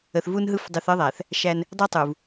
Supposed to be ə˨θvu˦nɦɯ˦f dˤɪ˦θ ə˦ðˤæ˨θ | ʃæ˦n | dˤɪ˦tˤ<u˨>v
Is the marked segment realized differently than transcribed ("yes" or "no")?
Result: no